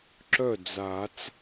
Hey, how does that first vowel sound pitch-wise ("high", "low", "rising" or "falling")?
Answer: falling